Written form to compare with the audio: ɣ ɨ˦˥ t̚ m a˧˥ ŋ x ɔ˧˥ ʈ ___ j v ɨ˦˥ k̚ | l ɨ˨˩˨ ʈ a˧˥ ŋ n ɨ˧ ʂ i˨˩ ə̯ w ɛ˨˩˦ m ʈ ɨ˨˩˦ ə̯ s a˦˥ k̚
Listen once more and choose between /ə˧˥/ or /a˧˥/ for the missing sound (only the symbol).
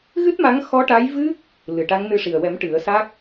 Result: a˧˥